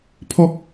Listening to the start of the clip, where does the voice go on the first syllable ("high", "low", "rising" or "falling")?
high